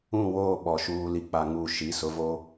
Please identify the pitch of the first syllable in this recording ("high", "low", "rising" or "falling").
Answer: falling